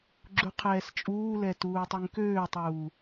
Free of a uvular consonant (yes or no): no